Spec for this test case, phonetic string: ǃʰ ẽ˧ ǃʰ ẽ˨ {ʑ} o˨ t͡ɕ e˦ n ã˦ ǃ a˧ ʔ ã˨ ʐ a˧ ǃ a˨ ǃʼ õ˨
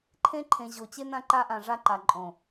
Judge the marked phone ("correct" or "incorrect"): correct